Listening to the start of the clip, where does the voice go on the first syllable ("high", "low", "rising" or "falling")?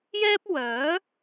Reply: high